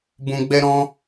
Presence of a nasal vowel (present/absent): present